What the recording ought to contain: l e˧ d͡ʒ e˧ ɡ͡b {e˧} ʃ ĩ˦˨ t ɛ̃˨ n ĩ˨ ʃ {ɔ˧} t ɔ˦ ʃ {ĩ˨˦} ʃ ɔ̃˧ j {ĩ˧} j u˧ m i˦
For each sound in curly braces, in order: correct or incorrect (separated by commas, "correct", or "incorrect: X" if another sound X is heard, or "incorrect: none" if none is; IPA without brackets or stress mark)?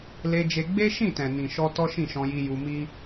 incorrect: e˦, correct, incorrect: ĩ˦˨, incorrect: i˧